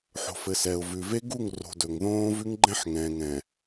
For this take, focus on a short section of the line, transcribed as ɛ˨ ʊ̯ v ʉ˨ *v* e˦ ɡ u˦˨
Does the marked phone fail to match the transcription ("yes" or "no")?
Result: no